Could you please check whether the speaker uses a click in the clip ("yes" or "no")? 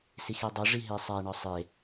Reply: no